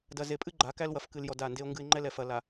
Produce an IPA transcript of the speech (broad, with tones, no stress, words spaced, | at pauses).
dɐ˨ze˨pʼɨ˦ ɡ͡ǃa˨˦kæ˦l wɐ˨fkɨ˨l jɔ˨ da˦˨nde˦o̯ŋɡɨ˦e̯ ŋ͡ǃɛ˦lɛ˨ fɐ˨ la˨